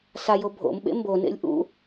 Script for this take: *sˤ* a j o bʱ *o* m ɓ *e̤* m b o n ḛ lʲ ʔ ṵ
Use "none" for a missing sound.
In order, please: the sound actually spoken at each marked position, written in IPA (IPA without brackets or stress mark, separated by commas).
s, o̰, ḛ